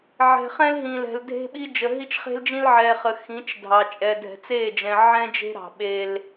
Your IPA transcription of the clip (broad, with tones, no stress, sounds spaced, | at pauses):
ʕ ɛ̤˨ χ ɛ̃˦ l ɦ ĩ˨ l ɛ̤˨ l dʱ e̤˦ ɓ i˦ d͡ʒ ə˨ ɦ i˦ t͡ʃ χ e̤˦ l d͡ʒ ĩ˦ l ʕ ɛ˨ χ ə˨ x ĩ˨˦ t͡ʃ dʱ ɑ˨ t͡ʃʼ ɛ˨ dʱ ɛ̤˨ t͡s e˦˨ d͡ʒ ɛ̃˨ ʕ ɛ̃˦ d͡ʒ e̤˦ ɾ ɑ̤˨ ɓ e˦ l